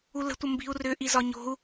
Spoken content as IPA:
ulə̤tʷə mbi̤u̯rʏʔi zɒɲo̤u̯

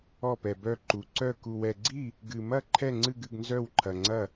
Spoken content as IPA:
ɔ˥˧pɛ˧bœ˥˧ǃu˧ ǀœ˥˧ ku˧wɛ˧ɡ͡ǀi˥˧ | ɡɨ˧mɐ˥˧ ǃʰɛ˥˧ŋ͡ǀɨ˥˧ɡɨ˥˧ɡnzœ˥˧w ǃʰɐ˧ŋ͡ǀɐ˥˧

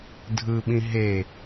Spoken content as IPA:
dʱɯɓĩ ɦe

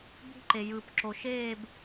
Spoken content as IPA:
bṳ˦ǃe˨jɯ˨p ǁo˨ʃeː˦˨b

